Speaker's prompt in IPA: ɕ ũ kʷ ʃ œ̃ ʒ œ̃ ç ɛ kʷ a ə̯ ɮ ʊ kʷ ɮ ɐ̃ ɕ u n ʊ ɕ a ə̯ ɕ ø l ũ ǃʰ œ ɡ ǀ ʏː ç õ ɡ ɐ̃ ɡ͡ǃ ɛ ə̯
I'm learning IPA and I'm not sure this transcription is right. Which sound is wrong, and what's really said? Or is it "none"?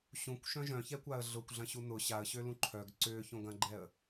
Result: none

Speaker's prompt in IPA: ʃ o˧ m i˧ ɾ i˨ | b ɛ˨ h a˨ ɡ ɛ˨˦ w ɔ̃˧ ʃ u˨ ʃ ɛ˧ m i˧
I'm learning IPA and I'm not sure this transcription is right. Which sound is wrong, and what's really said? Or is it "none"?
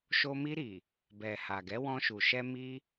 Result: none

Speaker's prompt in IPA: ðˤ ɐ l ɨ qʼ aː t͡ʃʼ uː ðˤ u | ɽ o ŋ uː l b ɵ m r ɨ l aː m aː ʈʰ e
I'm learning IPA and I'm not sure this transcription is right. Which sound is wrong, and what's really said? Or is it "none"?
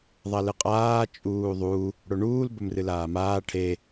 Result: ŋ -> ɳ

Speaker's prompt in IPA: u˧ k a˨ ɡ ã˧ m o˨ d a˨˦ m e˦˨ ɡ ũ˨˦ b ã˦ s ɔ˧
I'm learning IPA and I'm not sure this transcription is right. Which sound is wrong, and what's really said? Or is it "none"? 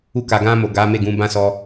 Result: d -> ɡ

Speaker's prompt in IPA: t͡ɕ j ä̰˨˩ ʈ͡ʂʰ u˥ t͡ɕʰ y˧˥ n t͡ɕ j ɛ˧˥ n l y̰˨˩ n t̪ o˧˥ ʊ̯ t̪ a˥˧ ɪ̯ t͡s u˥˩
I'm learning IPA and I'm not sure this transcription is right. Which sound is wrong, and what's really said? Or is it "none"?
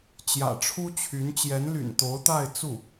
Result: none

